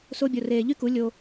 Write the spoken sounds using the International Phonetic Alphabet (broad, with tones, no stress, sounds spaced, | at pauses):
s o˧ bʲ o˨ r eː˨ ʎ y˦ k u˨˦ lʲ o˧